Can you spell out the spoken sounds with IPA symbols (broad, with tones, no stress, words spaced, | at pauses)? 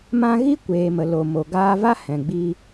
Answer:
mã˧ ɣi˦kʷeː˨mə˨ lo˨mo˨ɡaː˧va˦ hɛ̃˨ɡ͡bi˧